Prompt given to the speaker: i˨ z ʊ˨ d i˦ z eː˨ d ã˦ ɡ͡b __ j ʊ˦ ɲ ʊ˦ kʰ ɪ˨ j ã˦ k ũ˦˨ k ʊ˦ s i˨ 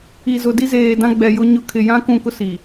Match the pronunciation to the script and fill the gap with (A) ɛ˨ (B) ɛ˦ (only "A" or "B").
A